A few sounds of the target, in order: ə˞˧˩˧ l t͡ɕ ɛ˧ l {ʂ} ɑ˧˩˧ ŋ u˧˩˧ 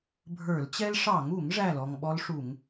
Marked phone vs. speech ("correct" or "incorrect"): correct